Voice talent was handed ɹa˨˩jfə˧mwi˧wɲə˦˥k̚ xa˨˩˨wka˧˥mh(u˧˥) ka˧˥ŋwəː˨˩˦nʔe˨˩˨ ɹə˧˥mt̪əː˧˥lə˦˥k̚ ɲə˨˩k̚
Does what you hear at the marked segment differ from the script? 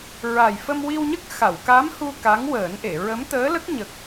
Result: yes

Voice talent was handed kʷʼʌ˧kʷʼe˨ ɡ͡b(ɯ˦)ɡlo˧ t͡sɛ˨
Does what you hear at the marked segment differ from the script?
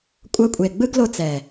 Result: no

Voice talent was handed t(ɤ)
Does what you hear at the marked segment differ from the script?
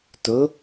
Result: yes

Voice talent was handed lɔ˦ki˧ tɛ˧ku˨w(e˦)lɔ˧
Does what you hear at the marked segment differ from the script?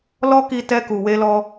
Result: yes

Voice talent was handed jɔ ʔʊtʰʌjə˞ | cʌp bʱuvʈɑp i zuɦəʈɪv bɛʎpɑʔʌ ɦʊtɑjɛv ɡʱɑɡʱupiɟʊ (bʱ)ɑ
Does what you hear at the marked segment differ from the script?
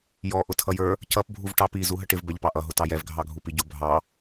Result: no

